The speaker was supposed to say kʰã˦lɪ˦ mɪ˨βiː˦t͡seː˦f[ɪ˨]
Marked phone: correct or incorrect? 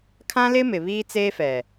incorrect